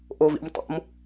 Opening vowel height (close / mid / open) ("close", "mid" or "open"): mid